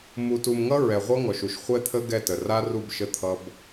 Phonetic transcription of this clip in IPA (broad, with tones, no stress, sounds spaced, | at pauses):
m u˨ t u˨ m ŋ ʌ˦ ɹ ɛ˨ ʁʷ ʌ˦ ŋ ɔ˨ ʃ u˨ ʃ χʷ ɛ˦ t̪ʰ ə˦ ɡ ɛ˦˨ t ə˨ r a˦ r u˦˨ b ʃ ə˦ t̪ʰ ʌ˦ b